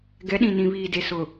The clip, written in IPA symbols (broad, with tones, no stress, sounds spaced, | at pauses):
ɡ ɛ˨˦ ɗ ĩ˨ n ĩ˨ β iː˨ d e˨ s ʊ˨